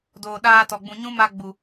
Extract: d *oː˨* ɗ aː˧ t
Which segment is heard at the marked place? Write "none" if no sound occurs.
oː˨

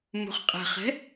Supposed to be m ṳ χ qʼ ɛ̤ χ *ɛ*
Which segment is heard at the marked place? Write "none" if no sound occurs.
ɛ̤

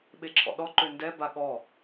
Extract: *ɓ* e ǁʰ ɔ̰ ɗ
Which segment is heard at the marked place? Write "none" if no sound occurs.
ɓ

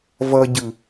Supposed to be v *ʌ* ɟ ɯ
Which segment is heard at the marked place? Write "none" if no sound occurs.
ʌ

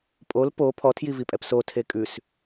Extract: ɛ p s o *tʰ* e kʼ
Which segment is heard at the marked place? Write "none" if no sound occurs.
tʰ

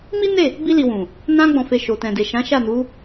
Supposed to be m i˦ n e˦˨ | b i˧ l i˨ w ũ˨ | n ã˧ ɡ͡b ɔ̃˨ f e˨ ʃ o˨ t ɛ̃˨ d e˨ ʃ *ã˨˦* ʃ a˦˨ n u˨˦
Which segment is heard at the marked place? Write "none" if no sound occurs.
ã˨˦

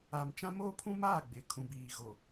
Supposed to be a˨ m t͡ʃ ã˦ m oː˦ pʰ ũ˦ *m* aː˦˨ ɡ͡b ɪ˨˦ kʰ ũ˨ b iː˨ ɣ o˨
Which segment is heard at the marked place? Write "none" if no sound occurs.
m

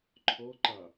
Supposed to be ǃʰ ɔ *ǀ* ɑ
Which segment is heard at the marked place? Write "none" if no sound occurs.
ǃ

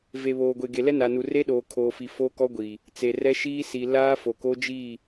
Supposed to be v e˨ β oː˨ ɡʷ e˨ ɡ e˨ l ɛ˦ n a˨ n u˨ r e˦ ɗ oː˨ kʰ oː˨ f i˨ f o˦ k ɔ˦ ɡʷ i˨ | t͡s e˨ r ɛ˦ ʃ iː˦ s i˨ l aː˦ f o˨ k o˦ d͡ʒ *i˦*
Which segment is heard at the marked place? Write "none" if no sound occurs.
i˦˨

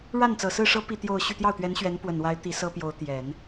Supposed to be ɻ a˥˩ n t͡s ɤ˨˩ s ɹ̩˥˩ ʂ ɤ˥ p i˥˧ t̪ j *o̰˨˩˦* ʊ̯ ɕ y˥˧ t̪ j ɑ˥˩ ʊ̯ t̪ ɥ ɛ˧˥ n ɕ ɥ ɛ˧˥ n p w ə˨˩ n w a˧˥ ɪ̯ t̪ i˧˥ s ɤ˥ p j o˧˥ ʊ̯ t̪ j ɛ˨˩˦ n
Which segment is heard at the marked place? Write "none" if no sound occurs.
o˥˧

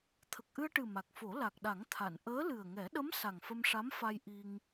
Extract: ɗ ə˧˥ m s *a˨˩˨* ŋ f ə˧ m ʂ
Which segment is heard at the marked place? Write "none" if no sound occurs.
a˨˩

